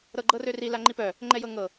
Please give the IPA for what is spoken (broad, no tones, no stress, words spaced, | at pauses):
ɾɤɡ͡ǃɤrøri laŋ͡ǃipœ | ŋ͡ǃɛjɤŋɤ